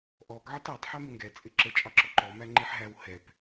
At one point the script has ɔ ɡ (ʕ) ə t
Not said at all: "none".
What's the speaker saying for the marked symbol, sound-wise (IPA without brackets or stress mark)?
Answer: ʕ